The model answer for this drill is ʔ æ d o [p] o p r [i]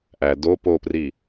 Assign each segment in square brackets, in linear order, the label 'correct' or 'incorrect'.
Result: correct, correct

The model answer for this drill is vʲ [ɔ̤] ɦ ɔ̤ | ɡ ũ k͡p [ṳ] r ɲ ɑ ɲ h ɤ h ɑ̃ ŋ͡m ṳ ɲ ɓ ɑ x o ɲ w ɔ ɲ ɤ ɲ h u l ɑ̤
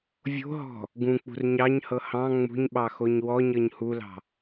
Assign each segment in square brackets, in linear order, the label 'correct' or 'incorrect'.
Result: incorrect, correct

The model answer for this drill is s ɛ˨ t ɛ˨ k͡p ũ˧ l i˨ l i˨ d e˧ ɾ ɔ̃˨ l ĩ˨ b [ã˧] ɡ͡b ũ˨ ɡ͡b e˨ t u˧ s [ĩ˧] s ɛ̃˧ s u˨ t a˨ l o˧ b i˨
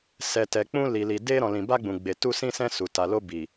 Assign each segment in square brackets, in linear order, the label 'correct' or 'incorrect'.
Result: incorrect, correct

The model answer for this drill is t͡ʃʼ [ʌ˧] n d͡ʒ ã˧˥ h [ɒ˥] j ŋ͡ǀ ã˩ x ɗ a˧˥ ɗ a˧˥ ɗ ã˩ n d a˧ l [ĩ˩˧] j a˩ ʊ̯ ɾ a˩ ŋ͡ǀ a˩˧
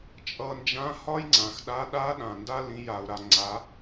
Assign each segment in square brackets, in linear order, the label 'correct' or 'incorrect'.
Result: correct, correct, correct

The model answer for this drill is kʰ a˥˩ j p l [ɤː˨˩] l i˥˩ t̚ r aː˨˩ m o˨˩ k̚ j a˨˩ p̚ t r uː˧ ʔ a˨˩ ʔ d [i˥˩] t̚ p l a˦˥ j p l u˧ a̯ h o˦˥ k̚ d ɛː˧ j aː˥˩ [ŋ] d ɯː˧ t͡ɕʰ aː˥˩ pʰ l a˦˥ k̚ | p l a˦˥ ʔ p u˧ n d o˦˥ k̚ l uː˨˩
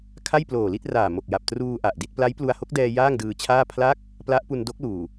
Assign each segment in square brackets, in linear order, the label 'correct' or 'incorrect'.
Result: incorrect, correct, correct

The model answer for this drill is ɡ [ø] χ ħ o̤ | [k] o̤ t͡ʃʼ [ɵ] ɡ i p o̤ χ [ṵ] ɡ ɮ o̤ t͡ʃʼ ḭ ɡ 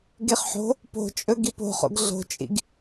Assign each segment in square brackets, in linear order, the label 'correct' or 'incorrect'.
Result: incorrect, incorrect, correct, incorrect

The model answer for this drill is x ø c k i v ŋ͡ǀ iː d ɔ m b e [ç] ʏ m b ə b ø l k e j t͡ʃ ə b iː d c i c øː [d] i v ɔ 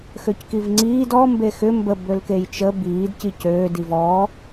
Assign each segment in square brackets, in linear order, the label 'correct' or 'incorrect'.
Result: incorrect, correct

